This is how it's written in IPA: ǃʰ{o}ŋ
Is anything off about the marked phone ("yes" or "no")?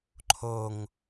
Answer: no